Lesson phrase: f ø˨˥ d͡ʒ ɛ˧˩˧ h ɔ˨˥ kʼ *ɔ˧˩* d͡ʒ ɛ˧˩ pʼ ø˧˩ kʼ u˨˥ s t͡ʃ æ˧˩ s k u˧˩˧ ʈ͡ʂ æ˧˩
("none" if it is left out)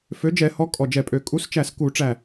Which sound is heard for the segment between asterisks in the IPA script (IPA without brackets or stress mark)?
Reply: ɔ˧˩